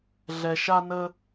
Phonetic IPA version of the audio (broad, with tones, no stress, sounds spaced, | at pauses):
ɮ ɛ˨ ʃ a˧ n ə˧